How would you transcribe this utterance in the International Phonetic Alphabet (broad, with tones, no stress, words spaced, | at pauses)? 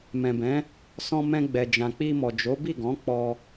mɛ̃˨bɛ̃˨˦ | sɔ̃˧ mɛ̃˧ɡ͡bɛ˨ d͡ʒã˨k͡pi˧mɔ˨ d͡ʒo˨˦bi˦˨ɡɔ̃˨˦ k͡pɔ˧